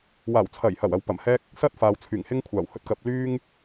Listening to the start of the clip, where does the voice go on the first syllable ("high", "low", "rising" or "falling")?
low